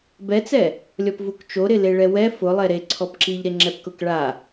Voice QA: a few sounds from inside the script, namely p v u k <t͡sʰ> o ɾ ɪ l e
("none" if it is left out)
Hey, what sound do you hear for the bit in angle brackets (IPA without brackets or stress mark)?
t͡ʃ